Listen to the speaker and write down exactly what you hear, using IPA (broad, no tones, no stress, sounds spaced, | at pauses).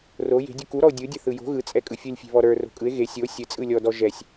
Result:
r o j e̤ dʲ u k u ɾ ɔ o̯ dʲ ɯ dʲ ɘ θ ɯ j o̤ ɣ ɯ t͡sʼ ɛ kʼ ɯ fʲ ɯ lʲ fʲ e̤ β ɔ ɾ ə˞ r o̤ kʼ ɯ e̯ ɣ e sʲ o sʲ ɘ t͡sʼ ɯ lʲ ɔ d ɔ ʒ ɛ sʲ